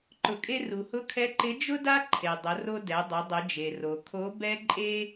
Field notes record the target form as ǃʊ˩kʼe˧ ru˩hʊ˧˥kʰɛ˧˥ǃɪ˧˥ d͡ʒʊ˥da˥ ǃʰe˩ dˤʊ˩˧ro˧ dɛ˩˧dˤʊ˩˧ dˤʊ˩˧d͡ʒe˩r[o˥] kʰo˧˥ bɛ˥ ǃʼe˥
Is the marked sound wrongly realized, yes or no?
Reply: yes